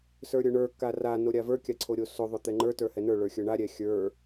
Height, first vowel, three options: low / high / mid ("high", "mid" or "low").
mid